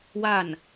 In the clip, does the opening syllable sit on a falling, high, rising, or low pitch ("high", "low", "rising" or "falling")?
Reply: falling